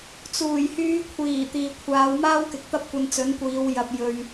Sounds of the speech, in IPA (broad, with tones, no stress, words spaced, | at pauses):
t͡suː˨˩jhyː˨˧kʷʰiː˨˩ t̪iː˨kʷʰaː˨˧wmaː˥wkɪ˨k̚ t̪ɐ˥p̚kʷɐ˧nt͡sɵ˨˥nkʷiː˨˧w jɐ˧p̚jɵ˧ɥ